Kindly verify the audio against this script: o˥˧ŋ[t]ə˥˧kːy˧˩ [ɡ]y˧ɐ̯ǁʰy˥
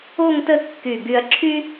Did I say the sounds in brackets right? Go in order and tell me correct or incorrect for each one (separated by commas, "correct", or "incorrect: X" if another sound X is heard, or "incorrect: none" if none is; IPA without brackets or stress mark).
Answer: correct, correct